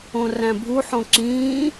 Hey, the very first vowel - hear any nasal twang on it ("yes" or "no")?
yes